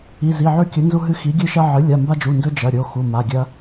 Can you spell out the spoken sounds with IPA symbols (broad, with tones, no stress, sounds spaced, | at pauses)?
i˩˧˩ z i˩˧˩ ʕ ʉ˦ kʲ ɵ˩˥ n z u˦ ɦ ɨ˦ x i˩˥ ɡʲ ɨ˦ ʃ ɐ˦ ʕ ɨ˩˥ lʲ a˩˧˩ m b a˦ d͡ʒ u˩˧˩ n d ɵ˦ d͡ʒ ɐ˩˧˩ ɾʲ o˩˧˩ x u˩˧˩ m a˩˧˩ ɡʲ ɐ˦